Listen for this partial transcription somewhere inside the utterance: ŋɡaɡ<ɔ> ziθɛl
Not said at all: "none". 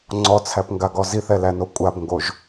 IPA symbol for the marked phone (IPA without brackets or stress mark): ɔ